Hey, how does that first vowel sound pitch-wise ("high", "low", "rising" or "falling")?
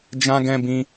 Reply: high